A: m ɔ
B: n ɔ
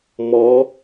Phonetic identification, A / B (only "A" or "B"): A